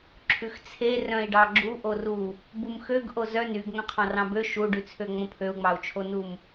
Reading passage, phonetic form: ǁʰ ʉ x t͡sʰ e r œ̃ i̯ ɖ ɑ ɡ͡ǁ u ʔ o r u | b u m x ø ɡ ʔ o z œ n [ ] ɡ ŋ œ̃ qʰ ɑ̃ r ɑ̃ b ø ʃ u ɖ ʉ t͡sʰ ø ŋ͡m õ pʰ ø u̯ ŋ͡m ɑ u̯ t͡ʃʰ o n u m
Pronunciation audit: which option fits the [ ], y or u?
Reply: y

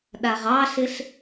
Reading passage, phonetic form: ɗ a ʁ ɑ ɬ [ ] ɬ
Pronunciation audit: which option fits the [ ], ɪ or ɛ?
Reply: ɪ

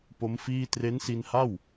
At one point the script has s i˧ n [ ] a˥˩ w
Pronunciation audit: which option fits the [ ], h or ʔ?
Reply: h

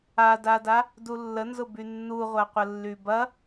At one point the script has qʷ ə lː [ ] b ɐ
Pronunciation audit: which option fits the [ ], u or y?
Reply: y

